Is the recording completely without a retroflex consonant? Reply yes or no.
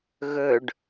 no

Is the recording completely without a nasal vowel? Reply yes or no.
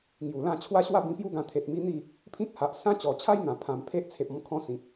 no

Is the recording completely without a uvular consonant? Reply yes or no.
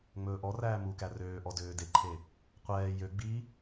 no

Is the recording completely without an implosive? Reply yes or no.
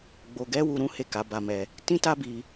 yes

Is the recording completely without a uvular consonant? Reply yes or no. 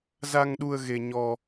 yes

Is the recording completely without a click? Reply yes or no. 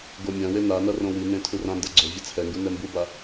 no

